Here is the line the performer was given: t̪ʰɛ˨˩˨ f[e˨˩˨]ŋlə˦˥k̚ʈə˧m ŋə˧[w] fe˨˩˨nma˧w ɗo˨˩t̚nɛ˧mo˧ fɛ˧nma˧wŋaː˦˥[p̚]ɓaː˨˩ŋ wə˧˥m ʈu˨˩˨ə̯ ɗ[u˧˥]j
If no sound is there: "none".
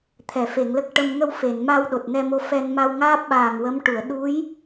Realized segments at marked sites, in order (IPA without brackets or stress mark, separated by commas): e˨˩˨, w, p̚, u˧˥